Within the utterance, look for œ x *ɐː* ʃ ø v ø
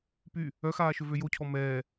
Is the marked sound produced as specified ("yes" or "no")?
no